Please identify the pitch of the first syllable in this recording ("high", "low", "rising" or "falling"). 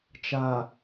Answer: low